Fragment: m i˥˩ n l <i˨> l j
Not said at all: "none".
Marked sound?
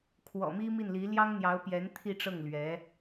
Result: i˧˥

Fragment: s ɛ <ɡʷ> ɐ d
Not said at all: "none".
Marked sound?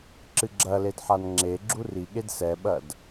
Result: ɓ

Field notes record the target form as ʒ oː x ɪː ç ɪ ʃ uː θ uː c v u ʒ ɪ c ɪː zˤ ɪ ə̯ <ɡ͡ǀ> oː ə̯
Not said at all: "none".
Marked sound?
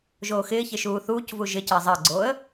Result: ɡ͡ǀ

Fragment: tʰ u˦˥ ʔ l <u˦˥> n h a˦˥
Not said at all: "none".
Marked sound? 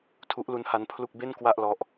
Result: u˦˥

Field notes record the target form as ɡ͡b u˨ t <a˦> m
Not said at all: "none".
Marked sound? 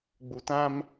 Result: ã˦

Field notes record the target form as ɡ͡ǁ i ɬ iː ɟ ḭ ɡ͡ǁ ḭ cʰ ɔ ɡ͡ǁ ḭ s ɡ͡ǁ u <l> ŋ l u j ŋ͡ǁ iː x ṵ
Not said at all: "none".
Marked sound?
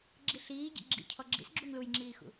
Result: none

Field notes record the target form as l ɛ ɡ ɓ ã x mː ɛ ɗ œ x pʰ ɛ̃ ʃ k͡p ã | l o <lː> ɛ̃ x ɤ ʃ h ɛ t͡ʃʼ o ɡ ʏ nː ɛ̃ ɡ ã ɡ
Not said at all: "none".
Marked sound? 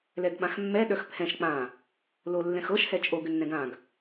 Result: lː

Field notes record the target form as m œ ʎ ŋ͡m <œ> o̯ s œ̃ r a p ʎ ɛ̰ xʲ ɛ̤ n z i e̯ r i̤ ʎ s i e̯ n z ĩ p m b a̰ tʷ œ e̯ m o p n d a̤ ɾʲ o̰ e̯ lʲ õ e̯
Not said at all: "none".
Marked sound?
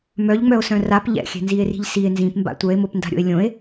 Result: œ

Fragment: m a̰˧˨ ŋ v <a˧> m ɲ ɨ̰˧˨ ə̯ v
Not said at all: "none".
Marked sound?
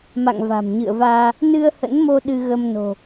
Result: a̤˨˩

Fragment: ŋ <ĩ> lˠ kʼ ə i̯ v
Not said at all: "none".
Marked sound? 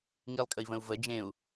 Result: i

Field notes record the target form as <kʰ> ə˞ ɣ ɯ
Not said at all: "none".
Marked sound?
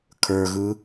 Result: kʰ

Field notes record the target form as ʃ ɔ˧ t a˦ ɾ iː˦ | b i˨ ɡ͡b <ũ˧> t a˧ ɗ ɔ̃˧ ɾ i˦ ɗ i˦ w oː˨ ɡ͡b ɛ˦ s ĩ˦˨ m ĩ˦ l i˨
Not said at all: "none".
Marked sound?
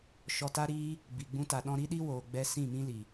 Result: ũ˦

